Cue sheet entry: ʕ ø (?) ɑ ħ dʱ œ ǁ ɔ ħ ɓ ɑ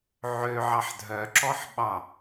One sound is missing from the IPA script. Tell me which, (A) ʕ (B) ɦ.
A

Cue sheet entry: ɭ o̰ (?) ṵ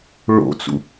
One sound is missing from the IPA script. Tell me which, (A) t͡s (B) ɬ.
A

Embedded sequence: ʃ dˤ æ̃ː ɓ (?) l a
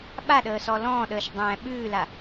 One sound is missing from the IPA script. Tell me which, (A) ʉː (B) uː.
A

